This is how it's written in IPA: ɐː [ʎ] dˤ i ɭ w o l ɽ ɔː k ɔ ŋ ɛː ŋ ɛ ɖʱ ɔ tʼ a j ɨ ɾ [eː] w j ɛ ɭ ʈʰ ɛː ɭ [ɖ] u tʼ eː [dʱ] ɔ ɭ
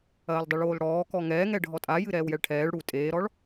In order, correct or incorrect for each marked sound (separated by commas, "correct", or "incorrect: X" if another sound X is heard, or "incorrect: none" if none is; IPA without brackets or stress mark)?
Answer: incorrect: l, incorrect: ɛː, incorrect: ɽ, incorrect: ɾ